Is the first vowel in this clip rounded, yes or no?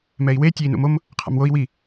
no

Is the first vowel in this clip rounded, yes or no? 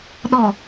yes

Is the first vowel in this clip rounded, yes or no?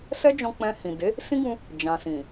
no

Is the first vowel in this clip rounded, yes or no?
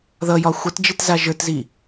no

